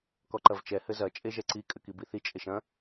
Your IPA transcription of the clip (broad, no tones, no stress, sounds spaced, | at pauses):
k ɔ ǃ ɐ v t͡ʃ ɛ h ɘ z ɐ t͡ʃʼ e ʒ ɛ ǀ i kʼ ɘ k i b i θ i t͡ʃʼ e ʃ ɐ̃